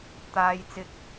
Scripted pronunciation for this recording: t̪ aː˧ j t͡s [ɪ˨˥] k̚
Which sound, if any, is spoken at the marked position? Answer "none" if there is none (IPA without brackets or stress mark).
ɪ˧